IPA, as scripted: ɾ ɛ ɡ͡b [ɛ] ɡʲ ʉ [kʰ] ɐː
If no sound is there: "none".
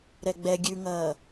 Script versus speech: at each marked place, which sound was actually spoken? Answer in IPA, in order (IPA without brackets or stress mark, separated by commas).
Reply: ɛ, ŋ